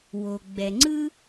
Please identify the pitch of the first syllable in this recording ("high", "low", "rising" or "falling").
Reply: low